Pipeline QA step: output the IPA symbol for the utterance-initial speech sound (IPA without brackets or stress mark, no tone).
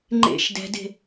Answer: ŋ͡ǃ